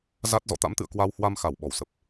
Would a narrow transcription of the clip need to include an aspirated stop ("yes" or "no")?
no